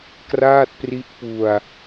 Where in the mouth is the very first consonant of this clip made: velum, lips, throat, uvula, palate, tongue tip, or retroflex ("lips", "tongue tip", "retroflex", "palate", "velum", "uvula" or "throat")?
velum